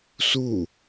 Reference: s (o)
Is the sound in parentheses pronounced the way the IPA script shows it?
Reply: no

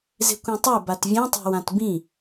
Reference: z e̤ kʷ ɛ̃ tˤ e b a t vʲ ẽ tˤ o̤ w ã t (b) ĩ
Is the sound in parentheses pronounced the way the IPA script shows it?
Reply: yes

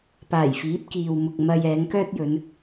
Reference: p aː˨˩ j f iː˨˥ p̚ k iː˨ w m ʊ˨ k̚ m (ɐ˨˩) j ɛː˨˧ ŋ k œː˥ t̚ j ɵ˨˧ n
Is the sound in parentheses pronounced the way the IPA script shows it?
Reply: no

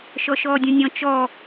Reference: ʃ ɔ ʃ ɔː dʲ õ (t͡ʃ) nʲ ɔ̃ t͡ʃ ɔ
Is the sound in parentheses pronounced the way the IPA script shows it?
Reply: no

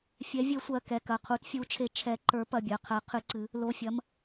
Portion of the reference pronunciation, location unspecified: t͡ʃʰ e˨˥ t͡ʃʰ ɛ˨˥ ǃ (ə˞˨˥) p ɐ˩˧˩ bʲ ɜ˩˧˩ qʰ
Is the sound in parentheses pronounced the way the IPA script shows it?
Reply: yes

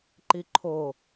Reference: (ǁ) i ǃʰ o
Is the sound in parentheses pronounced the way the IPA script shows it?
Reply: no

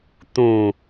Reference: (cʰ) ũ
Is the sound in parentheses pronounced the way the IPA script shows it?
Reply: no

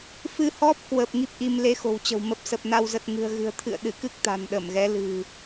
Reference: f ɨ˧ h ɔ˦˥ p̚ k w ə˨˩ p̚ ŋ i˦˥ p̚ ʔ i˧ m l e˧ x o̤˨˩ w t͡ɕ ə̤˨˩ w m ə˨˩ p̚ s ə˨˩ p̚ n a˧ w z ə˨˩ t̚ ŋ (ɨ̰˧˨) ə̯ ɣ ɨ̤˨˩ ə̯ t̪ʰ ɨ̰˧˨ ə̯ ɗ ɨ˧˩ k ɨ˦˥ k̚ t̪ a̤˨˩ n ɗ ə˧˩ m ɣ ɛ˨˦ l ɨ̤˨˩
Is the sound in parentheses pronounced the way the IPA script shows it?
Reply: no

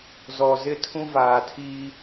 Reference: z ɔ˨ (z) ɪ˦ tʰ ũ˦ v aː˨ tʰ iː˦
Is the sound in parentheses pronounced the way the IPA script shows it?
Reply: yes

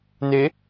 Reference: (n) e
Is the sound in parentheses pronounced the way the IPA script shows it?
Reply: yes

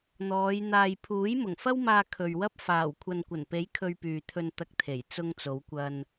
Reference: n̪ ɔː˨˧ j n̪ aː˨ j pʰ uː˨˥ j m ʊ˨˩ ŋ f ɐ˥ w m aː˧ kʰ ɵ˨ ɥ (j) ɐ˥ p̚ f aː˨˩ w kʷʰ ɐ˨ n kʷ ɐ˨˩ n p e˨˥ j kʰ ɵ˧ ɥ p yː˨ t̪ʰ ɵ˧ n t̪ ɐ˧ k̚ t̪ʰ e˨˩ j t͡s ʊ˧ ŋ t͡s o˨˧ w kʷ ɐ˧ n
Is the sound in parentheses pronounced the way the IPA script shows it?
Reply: no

